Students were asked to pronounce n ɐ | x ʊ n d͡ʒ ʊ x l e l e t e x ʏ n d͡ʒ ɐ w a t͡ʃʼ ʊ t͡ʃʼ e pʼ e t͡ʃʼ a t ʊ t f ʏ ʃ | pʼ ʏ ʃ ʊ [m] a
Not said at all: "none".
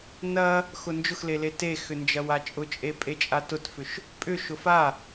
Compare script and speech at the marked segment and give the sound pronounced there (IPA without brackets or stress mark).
f